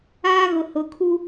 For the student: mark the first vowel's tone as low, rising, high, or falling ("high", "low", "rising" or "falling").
high